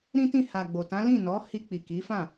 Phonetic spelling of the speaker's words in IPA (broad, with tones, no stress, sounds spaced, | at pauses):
ɾ ĩ˦ t ĩ˦˨ h a˨ ɡ͡b o˨ t ã˨˦ l ĩ˦˨ n ɔ˨˦ h i˧ k͡p i˨ k i˨˦ f ã˦˨